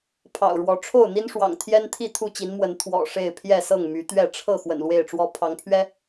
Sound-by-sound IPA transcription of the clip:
pʰɑ̰˨˩ʊ̯ɻwɔ˨˦ ʈ͡ʂʰo˥˨ʊ̯n̪i˦nʂwɑ̰˨˩ŋ t̪ʰjɛ˦nt̪ʰi˥˨ t̪ʰu˥˨t͡ɕi˨˦n mwə˨˦n t̪ʰwɔ̰˨˩ ʂe˥˨ɪ̯pʰjɛ˥˨ sɤ˥˨ŋmy˨˦t̪ɥɛ˥˨ ʈ͡ʂʰɤ˥˨ xwə̰˨˩nlwe˥˨ɪ̯ʈ͡ʂwɔ˦ pʰɑ˨˦ŋpʰɥɛ˦

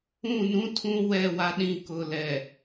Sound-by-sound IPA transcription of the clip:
ũ˦˨nũ˦tʰũ˦ wɛ˦˨wa˦ɗĩ˦˨ kʊ˨lɛ˨

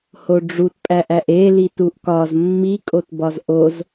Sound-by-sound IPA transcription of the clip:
hoɖ͡ʐutpʼæʔæʔ elit uʔkɒz mːikʼot bɒzʔoz

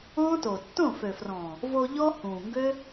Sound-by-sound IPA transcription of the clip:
ɔ̃ː˦to˨ tːõ˦˨fø˨frɔ̃ː˨ | vo˧ ʎɔ˦hũː˨ŋɡø˦

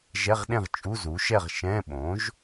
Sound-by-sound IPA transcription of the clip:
ʒɛ˧˥˧ʁɗẽ˥˨ʁ t͡ʃʼu˧˥˧ zu˩˥ ʃɛ˥˨ʁ ʃɛ̃˧˥˧ ɓõ˩˥ʒ

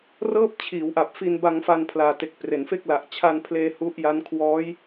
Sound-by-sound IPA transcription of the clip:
rɤː˥˩p̚t͡ɕʰiː˩˦w ʔa˨˩p̚fi˧nba˧ŋfa˧n pʰlaː˨˩te˨˩k̚ pre˩˦nfe˥˩k̚la˨˩ʔ t͡ɕʰa˧npʰleː˧ hu˦˥ʔja˦˥n kʰwɔː˦˥j

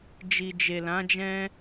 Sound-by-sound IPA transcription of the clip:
d͡ʒi˨d͡ʒe˨lã˨˦d͡ʒɛ̃˦

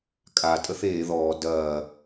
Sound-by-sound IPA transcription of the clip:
kʼa tʼəθeː ðɔː dɐː

